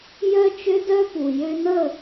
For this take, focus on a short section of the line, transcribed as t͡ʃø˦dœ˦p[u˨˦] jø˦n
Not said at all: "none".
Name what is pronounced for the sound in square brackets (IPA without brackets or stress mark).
u˨